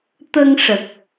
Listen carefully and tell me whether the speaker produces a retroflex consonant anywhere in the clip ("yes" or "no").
yes